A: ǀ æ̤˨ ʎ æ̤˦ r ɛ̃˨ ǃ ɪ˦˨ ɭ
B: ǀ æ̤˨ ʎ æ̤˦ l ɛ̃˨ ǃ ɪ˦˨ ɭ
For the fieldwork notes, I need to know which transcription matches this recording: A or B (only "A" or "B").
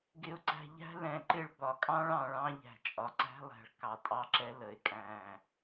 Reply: B